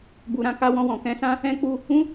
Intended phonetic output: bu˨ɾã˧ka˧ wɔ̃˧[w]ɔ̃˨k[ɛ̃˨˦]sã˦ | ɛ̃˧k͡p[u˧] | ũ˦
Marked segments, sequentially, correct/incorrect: correct, correct, correct

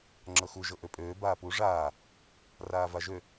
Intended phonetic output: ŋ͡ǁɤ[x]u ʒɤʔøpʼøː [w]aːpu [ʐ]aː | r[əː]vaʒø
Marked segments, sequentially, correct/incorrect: correct, incorrect: b, correct, incorrect: aː

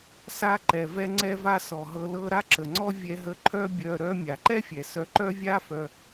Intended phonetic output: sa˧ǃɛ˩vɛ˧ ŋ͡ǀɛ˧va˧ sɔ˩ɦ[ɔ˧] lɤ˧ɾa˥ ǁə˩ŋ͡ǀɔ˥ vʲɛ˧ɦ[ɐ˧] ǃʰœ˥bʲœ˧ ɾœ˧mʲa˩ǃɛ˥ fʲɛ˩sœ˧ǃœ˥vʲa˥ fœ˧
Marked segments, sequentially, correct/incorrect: incorrect: ɤ˧, incorrect: ə˧

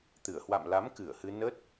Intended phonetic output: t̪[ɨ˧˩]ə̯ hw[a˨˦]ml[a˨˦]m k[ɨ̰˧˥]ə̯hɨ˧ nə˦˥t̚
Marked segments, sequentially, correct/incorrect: correct, incorrect: a̰˧˨, correct, incorrect: ɨ˧˩

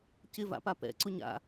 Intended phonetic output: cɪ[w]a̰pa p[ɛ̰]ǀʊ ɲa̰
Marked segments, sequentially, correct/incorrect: incorrect: v, correct

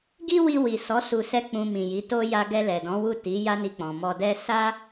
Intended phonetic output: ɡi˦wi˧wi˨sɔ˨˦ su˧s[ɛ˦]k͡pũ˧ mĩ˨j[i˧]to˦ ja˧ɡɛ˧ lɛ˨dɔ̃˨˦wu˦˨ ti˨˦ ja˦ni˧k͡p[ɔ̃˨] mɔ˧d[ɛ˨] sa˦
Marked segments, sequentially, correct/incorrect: correct, incorrect: i˨˦, correct, incorrect: ɛ˦

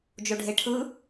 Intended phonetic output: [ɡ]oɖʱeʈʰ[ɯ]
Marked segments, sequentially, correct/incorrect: incorrect: d͡ʒ, correct

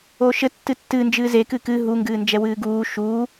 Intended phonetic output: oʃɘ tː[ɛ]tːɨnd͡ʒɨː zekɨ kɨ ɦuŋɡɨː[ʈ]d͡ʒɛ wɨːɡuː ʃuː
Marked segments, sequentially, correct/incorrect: incorrect: ɨ, incorrect: n

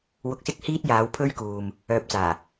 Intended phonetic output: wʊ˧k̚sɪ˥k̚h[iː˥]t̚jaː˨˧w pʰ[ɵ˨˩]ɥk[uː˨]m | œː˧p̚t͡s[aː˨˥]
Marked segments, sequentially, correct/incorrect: correct, incorrect: ɵ˥, correct, incorrect: aː˨˩

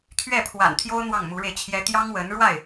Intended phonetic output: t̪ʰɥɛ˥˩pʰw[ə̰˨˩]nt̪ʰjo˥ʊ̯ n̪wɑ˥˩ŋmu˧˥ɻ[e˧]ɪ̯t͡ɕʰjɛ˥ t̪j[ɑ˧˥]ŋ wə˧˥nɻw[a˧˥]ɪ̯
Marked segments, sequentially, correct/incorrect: incorrect: a̰˨˩, correct, incorrect: ɑ˥, incorrect: a˥˩

